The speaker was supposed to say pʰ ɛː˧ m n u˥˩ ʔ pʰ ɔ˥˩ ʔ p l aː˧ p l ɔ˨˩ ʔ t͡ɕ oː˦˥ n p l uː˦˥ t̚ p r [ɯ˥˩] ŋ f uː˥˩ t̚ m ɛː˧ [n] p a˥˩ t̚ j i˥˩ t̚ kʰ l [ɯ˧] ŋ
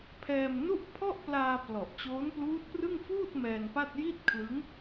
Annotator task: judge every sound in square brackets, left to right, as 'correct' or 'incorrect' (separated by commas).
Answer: correct, correct, incorrect